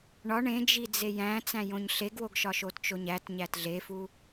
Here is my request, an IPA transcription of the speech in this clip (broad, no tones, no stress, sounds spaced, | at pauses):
ɳ ɒ ɳ ẽ d͡ʒ i d͡z e j æ̃ t͡s æ̃ j õ ɲ ɬ e ɡ w o ɡ ʃ ɒ ʃ o t t͡ʃ o ɲ æ t ɲ æ t ɮ e f u